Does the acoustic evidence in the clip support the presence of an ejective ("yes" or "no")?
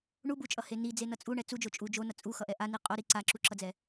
yes